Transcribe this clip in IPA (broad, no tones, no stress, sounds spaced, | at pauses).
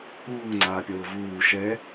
uː ŋ͡ǀ aː pʲ ɤː v uː ʃ ɛ